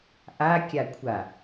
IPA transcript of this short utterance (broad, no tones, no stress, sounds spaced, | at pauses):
ʔ a kʲ a kʷʰ a